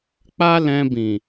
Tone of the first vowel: high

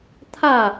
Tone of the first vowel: falling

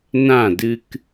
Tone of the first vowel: falling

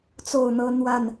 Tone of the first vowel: falling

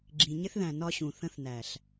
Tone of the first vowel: low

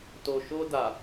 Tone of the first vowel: low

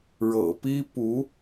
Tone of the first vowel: low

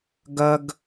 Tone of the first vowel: high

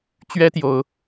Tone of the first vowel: high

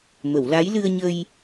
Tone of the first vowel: low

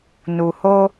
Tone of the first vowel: low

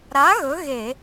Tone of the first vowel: rising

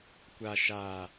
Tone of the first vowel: low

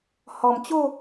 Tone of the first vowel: low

